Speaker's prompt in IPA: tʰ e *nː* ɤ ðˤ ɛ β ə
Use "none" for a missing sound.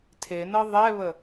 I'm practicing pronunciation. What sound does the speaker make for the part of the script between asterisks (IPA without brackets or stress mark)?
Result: n